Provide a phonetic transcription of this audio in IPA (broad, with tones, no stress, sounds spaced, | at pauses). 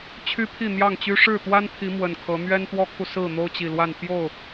t͡ɕʰ y˦ pʰ i˥˨ n̪ j ɑ˥˨ ŋ t͡ɕ y˦ ʂ ɻ̩˥˨ t̪ w a˦ n pʰ i˨˦ m w ə˨˩ n kʰ ɤ˨˦ n̪ ɥ ɛ˦ n t̪ w ɔ˦ kʰ u˨ s ɹ̩˥˨ n̪ o˦ ʊ̯ t͡ɕ i˨˩ l w a˥˨ n p j o˥˨ ʊ̯